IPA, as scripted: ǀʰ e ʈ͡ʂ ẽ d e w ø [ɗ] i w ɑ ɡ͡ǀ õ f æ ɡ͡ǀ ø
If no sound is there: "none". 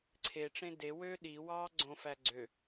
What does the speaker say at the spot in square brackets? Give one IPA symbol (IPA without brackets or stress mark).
ɗ